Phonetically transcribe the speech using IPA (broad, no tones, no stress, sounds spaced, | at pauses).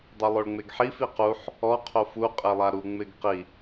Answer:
dˤ ɛ lˠ o ɭ ŋ͡m e ɡ ħ i f i q u ħ | ɔ qʰ o f u qʼ e lˠ a ɾ u ŋ͡m ɪ ɡ q i